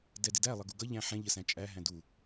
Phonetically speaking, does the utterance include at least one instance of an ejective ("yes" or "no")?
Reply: yes